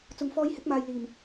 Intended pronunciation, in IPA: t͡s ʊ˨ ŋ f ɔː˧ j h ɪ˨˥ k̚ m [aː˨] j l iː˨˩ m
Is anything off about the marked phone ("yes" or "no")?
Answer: no